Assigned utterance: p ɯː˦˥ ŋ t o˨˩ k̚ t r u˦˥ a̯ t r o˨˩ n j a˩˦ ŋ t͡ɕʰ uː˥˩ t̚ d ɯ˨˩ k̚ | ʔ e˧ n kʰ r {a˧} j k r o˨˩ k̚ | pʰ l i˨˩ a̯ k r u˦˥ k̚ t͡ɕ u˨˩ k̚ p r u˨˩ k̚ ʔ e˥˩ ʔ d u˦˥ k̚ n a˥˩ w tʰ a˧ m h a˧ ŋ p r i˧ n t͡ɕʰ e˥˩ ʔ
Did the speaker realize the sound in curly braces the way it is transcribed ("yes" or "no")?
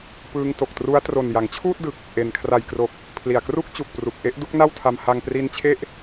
no